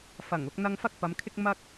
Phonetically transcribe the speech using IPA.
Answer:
f ɐ˨˩ ŋ ʊ˨˥ k̚ n̪ ɐ˥ ŋ f ɐ˥ k̚ p ɐ˨˧ m kʰ ɪ˥ k̚ m ɐ˥ k̚

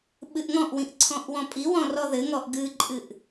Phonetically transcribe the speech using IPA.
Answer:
ɓ ɨ ʔ ŋ ɔ̃ ʔ w ĩ ʔ ǀʰ ɔ̃ ʔ w ɔ̃ pʼ i w ɔ̃ r ɔ ð ɘ ŋ ɔ ʔ ɡ ɨ ǃʼ ɨ ʔ

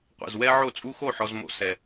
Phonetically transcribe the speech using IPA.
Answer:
qʷ ɛ̰˨ z w ɛ˦ ʕ o˦˨ t͡sʼ u˦ x o˦˨ ħ ɔ˨ z m o̰˨ s ɛ˨

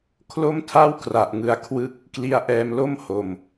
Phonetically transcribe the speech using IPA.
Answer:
kʰ l o˥˩ m tʰ a˥˩ w k r a˨˩ ʔ ŋ ɯ˧ a̯ kʰ w ɯ˥˩ k̚ | k l i˦˥ a̯ ʔ ɛː˧ m l o˥˩ m h o˨˩ m

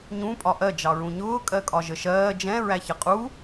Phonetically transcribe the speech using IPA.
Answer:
ɲ ũ pʼ ɒ ʔ ɜ d͡ʒ ɑ ɹ ũ ɲ ʊː kʼ ɜ kʼ ɒ ʒ ə ʃ ɜː d͡ʒ ɛ̃ ɹ æ ç ʌ qʼ u

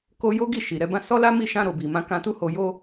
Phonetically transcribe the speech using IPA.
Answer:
k o˧ j o˦ ɡ i˦˨ ʃ i˨ ɾ ɛ˨˦ b ã˦ s ɔ˦ l a˦ m i˦˨ ʃ ã˧ ɾ o˨ b i˨ m ã˧ k ã˧ t u˦ h o˧ j o˦

